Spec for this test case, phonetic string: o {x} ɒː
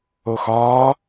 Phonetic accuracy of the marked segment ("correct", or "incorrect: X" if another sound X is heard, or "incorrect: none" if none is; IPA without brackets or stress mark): correct